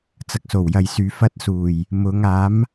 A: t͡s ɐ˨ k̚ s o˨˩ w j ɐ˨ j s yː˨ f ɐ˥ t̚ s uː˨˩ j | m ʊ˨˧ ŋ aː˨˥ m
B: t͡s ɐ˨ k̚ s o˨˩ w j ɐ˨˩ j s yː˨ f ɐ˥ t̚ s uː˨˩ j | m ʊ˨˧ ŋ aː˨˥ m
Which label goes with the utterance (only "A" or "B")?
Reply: A